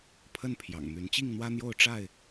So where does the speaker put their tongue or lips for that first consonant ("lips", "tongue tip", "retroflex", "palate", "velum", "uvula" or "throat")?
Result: lips